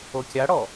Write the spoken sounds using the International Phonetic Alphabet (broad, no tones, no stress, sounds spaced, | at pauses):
o kʲ a ɽ ɔ